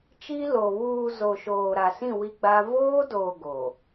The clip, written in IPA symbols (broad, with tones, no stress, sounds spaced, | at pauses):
t͡ʃ i˦ l o˨ β uː˨ z o˨ ʃ oː˨ ɾ a˨ s ĩ˦˨ w i˦ ɡ͡b a˦ v oː˦ d oː˨ ɡ o˨